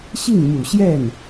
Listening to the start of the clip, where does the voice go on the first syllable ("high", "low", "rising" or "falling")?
falling